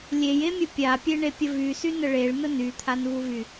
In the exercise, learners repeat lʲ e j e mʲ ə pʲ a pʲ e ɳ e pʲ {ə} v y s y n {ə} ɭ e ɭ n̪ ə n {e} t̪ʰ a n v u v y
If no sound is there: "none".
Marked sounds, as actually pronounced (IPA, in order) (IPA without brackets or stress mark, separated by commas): ə, ə, y